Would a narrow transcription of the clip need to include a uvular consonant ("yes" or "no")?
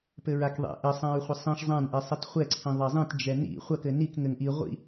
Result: yes